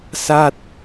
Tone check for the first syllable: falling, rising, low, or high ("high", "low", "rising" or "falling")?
falling